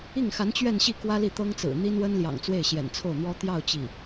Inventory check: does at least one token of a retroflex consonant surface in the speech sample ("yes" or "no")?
no